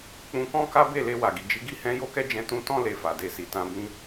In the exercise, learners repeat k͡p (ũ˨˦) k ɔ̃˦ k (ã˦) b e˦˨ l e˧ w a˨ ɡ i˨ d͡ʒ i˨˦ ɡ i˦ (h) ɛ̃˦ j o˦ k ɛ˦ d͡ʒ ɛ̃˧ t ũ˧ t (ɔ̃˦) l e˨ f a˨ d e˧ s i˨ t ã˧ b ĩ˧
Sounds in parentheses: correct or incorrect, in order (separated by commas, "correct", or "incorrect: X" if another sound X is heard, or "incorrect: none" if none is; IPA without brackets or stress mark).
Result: incorrect: ũ˧, incorrect: a˦, correct, incorrect: ɔ̃˧